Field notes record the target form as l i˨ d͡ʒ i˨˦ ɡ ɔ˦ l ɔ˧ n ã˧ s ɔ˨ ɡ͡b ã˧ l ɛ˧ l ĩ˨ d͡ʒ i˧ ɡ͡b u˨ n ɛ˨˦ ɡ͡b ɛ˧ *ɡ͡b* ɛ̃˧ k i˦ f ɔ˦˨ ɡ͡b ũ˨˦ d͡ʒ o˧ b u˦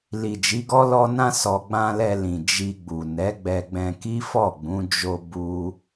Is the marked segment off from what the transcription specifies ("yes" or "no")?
no